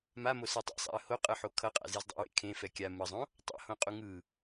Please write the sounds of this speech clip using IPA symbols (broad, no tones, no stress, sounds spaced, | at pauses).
m a m o s ɛ tˤ ɛ̰ sˤ a̰ ə̯ h o qʼ ɯ ħ o kʰ ʌ qʼ a̰ z e z dˤ ḭ w ḛ kʰ ẽ f ɛ kʲ a m ɯ zˤ õ | tˤ a̰ h õ qʼ u ŋ ɯ